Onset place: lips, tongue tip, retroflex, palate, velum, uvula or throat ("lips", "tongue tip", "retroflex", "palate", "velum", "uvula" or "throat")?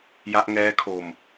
palate